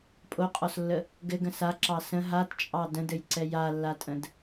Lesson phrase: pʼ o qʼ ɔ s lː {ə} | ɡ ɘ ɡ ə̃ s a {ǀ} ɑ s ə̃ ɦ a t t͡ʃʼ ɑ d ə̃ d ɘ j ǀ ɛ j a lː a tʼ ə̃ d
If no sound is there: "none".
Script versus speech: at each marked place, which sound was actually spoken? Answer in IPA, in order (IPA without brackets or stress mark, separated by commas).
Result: ə, ǁ